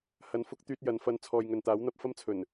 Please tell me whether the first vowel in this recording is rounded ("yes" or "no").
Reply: no